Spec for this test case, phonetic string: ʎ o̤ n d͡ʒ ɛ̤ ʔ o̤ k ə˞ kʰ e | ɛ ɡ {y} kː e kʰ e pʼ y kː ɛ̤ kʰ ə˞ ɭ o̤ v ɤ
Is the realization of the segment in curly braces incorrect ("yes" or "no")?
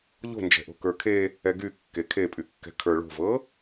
no